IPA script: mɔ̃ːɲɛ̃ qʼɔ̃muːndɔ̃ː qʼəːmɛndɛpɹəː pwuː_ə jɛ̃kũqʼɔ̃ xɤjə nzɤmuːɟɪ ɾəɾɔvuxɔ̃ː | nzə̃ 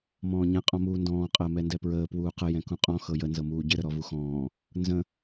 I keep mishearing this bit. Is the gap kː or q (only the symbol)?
q